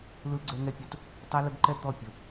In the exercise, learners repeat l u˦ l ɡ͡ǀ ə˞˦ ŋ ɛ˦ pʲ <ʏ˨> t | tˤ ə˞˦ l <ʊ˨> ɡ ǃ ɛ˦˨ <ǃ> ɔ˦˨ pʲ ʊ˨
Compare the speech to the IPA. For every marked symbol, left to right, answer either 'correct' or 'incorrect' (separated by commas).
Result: incorrect, incorrect, incorrect